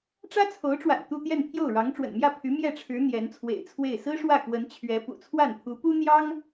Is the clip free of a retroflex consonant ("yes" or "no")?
no